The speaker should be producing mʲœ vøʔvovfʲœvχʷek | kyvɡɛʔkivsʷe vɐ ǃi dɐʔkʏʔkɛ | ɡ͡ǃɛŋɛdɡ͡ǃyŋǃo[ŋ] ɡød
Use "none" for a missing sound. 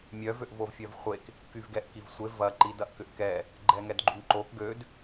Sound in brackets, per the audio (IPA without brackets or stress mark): k